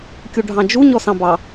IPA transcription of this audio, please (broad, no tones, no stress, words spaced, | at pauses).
kʲuɖʱɑ̃d͡ʒu ɲɔsɑ̃bɑ